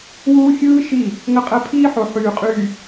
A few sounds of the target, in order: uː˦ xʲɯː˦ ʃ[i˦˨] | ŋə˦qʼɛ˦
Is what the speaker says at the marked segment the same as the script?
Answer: yes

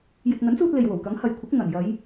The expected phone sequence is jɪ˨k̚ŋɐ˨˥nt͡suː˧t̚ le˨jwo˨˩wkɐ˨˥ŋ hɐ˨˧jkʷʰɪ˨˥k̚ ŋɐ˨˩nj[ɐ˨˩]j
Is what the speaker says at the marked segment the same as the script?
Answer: no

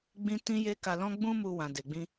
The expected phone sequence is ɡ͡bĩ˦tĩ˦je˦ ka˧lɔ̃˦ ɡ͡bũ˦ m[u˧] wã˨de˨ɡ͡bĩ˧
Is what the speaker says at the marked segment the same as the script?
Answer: yes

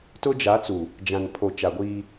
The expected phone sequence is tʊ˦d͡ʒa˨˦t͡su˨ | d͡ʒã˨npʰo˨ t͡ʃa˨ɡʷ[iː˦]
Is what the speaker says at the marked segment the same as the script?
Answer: yes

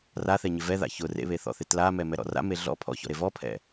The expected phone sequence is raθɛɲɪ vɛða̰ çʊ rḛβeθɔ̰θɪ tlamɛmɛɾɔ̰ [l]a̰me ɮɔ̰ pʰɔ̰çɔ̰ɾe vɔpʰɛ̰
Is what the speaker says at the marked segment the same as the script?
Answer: no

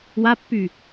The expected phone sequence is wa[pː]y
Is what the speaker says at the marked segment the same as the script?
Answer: yes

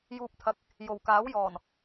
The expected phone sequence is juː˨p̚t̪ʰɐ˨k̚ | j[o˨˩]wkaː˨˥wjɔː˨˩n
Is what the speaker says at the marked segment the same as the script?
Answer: yes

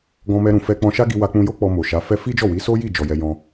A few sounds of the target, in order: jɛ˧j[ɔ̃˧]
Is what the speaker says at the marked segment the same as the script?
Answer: yes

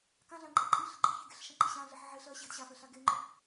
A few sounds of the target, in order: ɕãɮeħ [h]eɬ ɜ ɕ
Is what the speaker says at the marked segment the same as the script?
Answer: no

